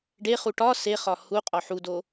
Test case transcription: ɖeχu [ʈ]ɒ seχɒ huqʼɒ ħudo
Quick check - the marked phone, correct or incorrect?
correct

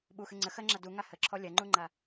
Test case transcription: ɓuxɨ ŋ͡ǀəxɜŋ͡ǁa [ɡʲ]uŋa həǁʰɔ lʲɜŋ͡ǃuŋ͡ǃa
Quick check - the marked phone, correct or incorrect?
incorrect: d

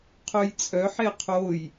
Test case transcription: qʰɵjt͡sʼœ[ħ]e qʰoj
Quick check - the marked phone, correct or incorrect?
correct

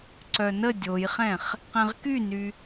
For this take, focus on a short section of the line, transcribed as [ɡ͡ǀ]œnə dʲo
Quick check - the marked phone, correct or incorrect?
incorrect: ǀ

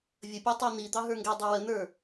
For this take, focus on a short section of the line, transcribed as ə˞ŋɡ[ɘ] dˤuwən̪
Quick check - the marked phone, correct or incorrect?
incorrect: ɛ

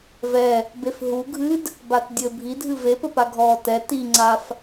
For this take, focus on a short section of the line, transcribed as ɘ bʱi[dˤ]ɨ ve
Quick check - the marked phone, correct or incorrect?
incorrect: dʱ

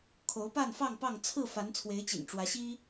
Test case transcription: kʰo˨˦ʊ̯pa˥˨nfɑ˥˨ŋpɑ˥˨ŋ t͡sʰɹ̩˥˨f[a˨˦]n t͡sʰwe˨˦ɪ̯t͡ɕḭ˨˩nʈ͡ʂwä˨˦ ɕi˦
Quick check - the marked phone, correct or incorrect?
correct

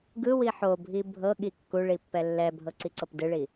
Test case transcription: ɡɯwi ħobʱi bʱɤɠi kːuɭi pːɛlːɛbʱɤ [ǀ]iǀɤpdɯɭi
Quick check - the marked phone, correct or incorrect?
correct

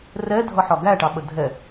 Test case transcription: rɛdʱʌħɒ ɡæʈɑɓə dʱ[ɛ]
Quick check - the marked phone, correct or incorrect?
correct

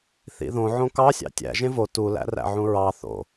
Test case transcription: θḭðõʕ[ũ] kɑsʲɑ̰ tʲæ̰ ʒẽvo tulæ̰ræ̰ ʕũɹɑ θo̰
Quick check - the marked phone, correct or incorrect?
incorrect: õ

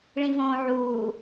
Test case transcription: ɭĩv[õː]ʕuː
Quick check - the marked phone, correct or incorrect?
correct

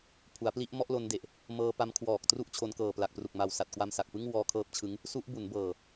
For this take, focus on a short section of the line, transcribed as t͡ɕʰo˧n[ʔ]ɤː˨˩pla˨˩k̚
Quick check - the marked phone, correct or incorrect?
incorrect: k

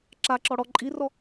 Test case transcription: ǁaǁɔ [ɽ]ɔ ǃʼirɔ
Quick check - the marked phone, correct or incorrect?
correct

